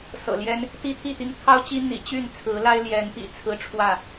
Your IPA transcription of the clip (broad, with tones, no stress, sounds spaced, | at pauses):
s ɤ̰˨˩ l j ɛ˦ n | t̪ i˦ t̪ʰ i˥˨ t̪ i˦ ŋ t̪ʰ ɑ˦ ʊ̯ t͡ɕ i˦ n̪ ḭ˨˩ t͡ɕ y˥˨ n t͡sʰ ɹ̩˨˦ l a˦ ɪ̯ l j ɛ˨˦ n p ḭ˨˩ t͡sʰ ɹ̩˦ ʈ͡ʂʰ w ä˥˨